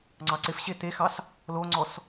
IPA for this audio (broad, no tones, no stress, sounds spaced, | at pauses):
ŋ͡ǀ ɑ ǀ ɪ f ɕ e t̪ e x ɑ s | l o ŋ͡ǀ ɔ s